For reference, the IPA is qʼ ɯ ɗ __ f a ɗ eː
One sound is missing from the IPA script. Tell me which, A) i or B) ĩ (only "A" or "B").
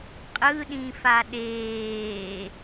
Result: B